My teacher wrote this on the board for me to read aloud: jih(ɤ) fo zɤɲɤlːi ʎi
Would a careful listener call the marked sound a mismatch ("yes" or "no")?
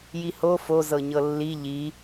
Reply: yes